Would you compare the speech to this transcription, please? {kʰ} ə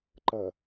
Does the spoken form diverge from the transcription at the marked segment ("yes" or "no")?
yes